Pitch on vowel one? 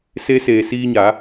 rising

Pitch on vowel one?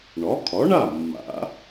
rising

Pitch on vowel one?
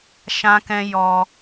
high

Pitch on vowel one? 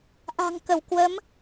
low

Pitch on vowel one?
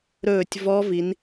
falling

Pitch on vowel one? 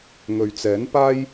low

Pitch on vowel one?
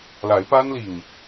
rising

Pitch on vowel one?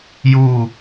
falling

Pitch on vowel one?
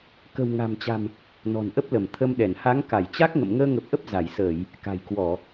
low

